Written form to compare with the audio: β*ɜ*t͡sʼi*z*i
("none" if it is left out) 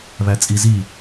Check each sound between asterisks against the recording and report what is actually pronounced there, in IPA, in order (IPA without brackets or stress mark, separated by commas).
æ, z